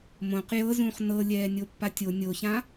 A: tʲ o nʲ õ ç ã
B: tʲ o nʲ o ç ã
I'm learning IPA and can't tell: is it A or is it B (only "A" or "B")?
B